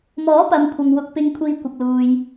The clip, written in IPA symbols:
mɔː˨˥pɐ˨mkʷʰɐ˨ŋ wʊ˥k̚ pɪ˧ŋkʷʰiː˧ kʷɪ˨k̚luː˨j

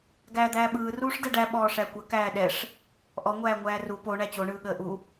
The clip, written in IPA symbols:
ɡæːd̪æːɓɯː ruːʂdɛɖæ ɓɔːʂækʷə kæːɗɛʂ | ʔɔ ŋʷæːŋʷæːru po ɳæt͡ɕo ɳɯːɠəːʔu

